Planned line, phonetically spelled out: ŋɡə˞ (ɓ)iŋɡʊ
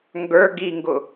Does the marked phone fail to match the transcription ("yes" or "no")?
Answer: yes